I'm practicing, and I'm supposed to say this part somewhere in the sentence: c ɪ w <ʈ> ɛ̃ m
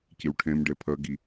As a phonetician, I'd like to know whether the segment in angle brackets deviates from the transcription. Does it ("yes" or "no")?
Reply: yes